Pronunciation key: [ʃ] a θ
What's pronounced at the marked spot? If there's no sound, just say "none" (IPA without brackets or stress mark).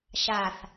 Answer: ʃ